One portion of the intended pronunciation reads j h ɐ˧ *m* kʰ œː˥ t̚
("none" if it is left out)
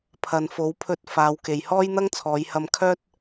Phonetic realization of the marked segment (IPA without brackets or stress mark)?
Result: m